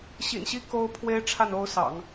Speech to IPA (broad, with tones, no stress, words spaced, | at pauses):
ɕḭ˨˩nɕi˥˩ ko˥ʊ̯ pʰwe˥ɪ̯ʈ͡ʂʰa˥˩no˥ʊ̯sɑ̰˨˩˦ŋ